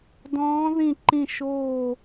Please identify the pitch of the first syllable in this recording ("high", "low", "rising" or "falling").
rising